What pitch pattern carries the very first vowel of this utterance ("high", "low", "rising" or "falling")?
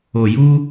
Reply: low